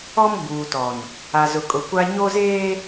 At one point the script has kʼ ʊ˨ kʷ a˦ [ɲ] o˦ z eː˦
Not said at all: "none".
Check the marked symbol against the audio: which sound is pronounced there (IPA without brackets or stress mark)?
ɲ